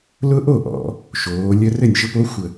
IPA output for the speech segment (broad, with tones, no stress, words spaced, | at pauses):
lʊ˦ʔo˥˩ ʔɔ̰˩˧ | ʃoː˩˧ lʲə˦rɘ˥˩nʲʃɘ˦p o˦xʷə˧˩